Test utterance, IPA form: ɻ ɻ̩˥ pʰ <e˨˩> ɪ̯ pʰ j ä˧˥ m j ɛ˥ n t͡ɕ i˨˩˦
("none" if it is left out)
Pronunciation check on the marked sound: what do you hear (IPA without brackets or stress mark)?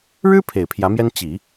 e˨˩